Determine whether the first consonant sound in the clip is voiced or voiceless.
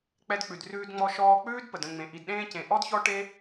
voiceless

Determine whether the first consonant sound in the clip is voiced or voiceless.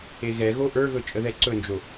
voiced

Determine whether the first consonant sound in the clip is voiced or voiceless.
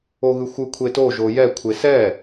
voiced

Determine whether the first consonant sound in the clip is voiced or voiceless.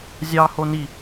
voiced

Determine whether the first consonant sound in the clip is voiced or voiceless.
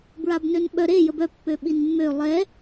voiced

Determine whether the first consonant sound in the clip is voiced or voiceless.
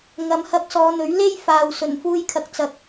voiced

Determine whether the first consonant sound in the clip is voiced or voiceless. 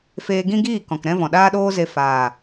voiceless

